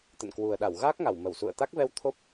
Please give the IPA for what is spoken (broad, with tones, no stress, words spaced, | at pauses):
t̪ə̰˧˨nkwu˨˩ə̯ɗa˧˩w ɣaː˦˥k̚ŋa˧˩w mə˧˩wsṵ˧˨ə̯ t̪a˦˥k̚vɛ˧w t̪ʰo˦˥p̚